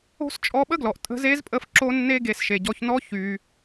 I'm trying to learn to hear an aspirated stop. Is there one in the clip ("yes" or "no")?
no